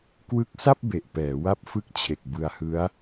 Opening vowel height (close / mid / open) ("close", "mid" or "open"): close